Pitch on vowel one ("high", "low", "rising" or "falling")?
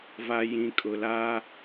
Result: low